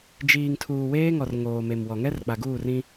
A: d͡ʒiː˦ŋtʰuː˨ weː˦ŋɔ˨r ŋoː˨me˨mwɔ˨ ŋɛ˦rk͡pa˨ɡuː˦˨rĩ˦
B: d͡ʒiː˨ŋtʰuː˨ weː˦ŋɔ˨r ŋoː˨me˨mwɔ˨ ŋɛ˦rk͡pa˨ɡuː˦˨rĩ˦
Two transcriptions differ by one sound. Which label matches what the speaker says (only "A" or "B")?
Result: B